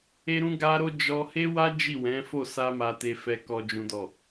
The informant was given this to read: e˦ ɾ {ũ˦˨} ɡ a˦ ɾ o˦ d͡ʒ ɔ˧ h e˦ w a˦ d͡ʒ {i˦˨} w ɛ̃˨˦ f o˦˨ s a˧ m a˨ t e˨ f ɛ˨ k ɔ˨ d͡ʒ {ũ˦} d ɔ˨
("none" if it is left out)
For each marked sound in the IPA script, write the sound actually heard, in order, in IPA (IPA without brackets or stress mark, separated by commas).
ũ˦, i˦˨, ũ˨